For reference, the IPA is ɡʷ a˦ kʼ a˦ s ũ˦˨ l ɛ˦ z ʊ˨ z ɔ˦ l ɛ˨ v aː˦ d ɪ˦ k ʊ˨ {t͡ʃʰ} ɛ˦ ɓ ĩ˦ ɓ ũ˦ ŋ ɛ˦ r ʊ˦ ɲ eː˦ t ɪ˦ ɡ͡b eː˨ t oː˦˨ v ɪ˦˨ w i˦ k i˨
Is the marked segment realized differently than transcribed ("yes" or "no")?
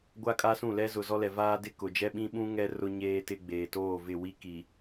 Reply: yes